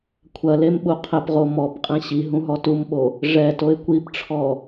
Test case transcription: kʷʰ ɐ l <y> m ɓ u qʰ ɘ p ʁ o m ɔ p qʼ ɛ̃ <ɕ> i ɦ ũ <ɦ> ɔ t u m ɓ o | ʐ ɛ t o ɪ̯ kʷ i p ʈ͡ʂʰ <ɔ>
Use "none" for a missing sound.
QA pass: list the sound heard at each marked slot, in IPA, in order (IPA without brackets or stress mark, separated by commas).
e, ɕ, ɦ, ɔ